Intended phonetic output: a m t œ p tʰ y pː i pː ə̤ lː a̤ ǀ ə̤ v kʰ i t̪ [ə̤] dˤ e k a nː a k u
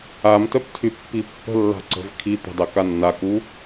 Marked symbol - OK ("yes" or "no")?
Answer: yes